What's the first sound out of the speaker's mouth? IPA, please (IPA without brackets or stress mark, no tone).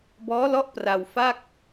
b